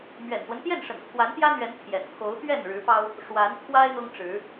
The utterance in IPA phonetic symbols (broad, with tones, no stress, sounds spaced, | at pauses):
m ɥ ɛ̰˨˩ n s w ə˦ n t̪ j ɛ˥˨ n ʂ ə̰˨˩ n kʰ w a˨˦ n t̪ j ä˦ n̪ ɥ ɛ˨˦ n pʰ j ɛ̰˨˩ n kʰ o˨˦ ʊ̯ t̪ ɥ ɛ˥˨ n ɻ ɻ̩˨˦ p ɑ˦ ʊ̯ | ʂ w a˨˦ n pʰ w a˦ ɪ̯ n̪ ʊ˦ ŋ ʈ͡ʂ ɻ̩˨˦